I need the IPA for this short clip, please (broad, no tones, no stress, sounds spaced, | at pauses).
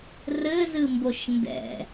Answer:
r ɘ z ɨ m b o ʃ n d ɛ̰